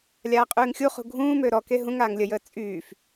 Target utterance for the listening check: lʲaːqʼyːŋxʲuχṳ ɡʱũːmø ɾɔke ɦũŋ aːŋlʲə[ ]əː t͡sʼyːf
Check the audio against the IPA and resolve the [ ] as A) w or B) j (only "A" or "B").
B